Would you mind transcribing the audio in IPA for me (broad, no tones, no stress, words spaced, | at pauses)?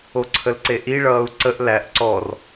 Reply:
oǀʰəlǀeʔi ɭʌːu̯ǀəʔ læʔ ǀɔr